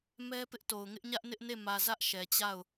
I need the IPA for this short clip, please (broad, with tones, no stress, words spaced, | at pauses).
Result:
mɛ˦pɪ˦ʔto˨ʊ̯ ŋɪ˦ʔɲä˦ʔnɪ˦ʔne˦˨ mä˨ zä˦ʔʃɛ˨t͡ɕa˦˨ʊ̯